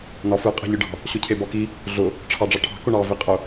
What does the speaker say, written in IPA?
n ɒ f ɯ qʼ ɛ̤ ʎ ɯ ɖ ɑ̤ | ɕ ʊ cʰ e b ɒ k i | ɮ ʊ | ʈ͡ʂʰ ɑ ɖ͡ʐ ɑ ʈʰ ɑ̤ k ʊ ɳ ɑ v i qʼ ʊ

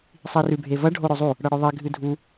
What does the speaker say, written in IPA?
sˤ i r ʉ bʱ e v ɐ ɖʱ o ɾ ɵ zˤ u | ɽ ɐ ɽ ɵ ðˤ e ɡʱ ɨ dʱ u

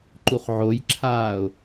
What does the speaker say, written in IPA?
ǃ u χ ʕ o j ǁʰ aː ʊ̯

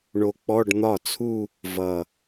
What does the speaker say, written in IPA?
ɳ o˧ k͡p ɔ˧˥˧ ɖ n̪ ɒ˥˩ t͡sʰ u˥˧ | v ʌ˨˩

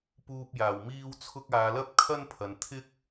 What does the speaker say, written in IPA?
p uː˧ p̚ j aː˨˩ w m iː˥ w t͡sʰ ʊ˥ k̚ aː˨˧ l ɐ˥ p̚ kʰ ɐ˥ n pʰ ɐ˨ n t̪ʰ ɪ˥ k̚

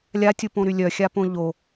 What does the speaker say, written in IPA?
lʲ a tʲ u p õ ɾ y lʲ œ xʲ a p õ ʎ o

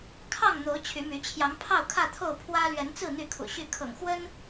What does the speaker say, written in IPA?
kʰ ɑ˥˨ ŋ n̪ o˨˦ ʊ̯ t͡ɕʰ y˨˦ m y˨˦ t͡ɕʰ j ɑ˨˦ ŋ pʰ ɑ˥˨ ʊ̯ kʰ ä˥˨ t̪ʰ o˥˨ ʊ̯ pʰ w ä˦ l ɥ ɛ˨˦ n t͡s ɹ̩˥˨ n̪ y˥˨ kʰ ṵ˨˩ ɕ y˥˨ kʰ ɤ̰˨˩ ŋ x w ə˦ n

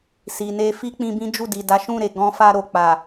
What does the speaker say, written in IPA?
s i˨ n e˧ f i˦ k͡p ĩ˧ b ĩ˦ d͡ʒ u˦˨ d i˨ d a˨˦ ʃ ũ˦˨ ɾ e˨ ɡ ɔ̃˧ f a˧ ɾ o˨ k͡p a˨

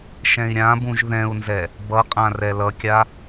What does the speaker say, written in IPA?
ʃ ɛ̃ i̯ ɾʲ ã b ũ ʒ ð ɛ̃ u̯ n z ɛ | b ʌ qʼ ã r ɛ l ʌ kʲ a

